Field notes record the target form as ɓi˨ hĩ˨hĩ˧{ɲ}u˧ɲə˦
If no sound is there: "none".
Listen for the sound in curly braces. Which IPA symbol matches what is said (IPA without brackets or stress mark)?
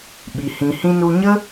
n